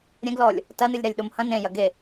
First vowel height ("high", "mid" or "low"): mid